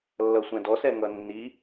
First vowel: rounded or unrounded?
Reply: unrounded